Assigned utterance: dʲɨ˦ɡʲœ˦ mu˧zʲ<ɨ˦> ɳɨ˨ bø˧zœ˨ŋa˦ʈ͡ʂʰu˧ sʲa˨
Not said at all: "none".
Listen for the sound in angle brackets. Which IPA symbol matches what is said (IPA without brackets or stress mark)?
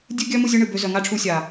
ɨ˧